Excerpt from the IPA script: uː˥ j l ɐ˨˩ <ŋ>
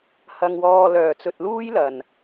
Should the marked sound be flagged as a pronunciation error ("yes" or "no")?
yes